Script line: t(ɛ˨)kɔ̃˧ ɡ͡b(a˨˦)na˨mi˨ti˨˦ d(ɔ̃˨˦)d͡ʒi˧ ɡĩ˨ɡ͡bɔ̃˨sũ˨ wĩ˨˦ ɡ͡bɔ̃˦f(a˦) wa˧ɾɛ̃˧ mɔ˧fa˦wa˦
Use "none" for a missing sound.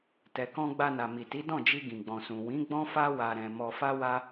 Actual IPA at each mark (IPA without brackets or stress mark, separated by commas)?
ɛ˨, a˧, ɔ̃˦˨, a˦